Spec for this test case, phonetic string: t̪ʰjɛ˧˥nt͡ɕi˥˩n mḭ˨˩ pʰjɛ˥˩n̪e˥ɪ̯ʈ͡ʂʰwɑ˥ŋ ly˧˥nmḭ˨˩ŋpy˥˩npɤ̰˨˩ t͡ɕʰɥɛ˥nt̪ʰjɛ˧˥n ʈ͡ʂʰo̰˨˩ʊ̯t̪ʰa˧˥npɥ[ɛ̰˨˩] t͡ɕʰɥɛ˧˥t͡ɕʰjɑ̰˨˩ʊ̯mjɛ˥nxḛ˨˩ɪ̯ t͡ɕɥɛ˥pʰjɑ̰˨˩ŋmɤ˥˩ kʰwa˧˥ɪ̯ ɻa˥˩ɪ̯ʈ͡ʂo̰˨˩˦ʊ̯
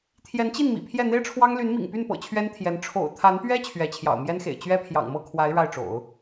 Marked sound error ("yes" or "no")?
yes